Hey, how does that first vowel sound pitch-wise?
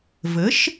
rising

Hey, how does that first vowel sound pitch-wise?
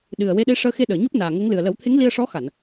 low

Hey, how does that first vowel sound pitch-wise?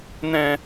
low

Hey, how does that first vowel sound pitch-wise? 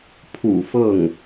low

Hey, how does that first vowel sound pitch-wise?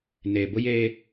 low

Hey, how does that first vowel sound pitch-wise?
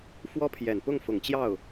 high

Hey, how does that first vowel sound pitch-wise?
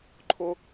high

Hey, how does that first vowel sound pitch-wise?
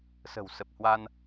low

